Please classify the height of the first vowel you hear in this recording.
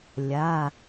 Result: low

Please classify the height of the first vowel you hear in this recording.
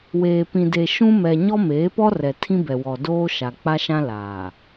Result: mid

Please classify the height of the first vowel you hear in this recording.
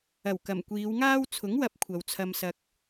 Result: low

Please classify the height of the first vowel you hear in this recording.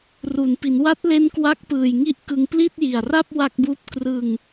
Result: high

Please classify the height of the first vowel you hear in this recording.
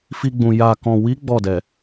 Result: high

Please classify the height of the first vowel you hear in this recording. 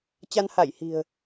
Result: low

